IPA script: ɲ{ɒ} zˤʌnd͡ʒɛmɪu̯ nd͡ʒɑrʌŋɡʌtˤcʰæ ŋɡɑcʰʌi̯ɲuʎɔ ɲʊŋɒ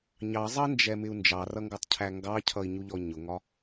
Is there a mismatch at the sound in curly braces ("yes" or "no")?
yes